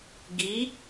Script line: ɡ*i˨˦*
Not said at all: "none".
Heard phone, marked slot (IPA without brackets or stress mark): i˨˦